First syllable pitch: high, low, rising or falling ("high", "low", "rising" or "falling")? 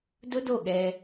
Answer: high